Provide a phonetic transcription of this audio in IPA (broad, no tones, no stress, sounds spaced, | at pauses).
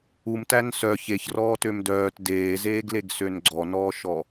u m t æ n s œ ç e ç r ɔː t ø m d œː t d eː z eː ɡ l e ɡ s ø n ɡ͡ǀ ɔ n ɔː ʃ ɔ